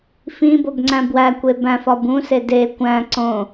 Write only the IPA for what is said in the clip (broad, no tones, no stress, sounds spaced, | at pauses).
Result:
f ĩ b o b ŋ͡ǀ æ̃ b w æ kʷ e b æ̃ f ɒ b ũ s e d e kʷ æ̃ ǀ õ